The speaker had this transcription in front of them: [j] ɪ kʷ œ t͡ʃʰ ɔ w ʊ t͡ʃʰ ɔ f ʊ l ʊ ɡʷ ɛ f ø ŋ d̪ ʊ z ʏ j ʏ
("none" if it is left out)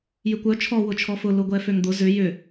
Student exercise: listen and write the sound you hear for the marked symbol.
j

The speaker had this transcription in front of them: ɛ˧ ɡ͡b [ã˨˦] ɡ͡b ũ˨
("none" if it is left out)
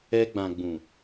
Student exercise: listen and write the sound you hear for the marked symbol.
ã˨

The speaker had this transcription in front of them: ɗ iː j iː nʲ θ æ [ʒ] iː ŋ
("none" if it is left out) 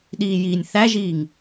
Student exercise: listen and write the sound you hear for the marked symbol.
ʒ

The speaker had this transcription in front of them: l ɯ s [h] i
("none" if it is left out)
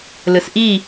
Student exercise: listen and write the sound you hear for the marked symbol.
ʔ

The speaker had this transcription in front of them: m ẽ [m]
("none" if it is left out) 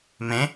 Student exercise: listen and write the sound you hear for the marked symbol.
none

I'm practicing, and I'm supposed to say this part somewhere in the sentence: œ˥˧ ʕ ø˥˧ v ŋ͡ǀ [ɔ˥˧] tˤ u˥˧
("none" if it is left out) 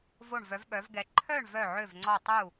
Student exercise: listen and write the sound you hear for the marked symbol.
ɔ˥˧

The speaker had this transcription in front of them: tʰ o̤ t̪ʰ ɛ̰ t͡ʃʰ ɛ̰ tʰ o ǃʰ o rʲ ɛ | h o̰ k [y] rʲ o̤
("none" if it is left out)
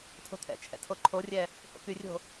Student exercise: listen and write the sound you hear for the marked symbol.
y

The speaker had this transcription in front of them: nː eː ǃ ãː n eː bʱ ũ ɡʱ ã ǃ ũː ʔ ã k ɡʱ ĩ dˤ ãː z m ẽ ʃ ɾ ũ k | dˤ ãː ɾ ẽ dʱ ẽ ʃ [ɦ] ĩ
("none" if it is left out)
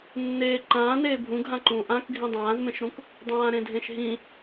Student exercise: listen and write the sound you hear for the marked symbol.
ɦ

